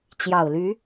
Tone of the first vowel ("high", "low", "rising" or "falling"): low